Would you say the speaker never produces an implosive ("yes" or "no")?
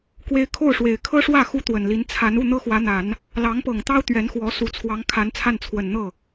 yes